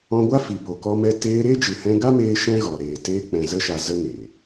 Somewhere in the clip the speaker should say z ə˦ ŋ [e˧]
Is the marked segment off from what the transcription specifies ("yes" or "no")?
yes